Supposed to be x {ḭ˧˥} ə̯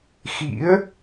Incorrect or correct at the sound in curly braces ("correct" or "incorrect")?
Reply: correct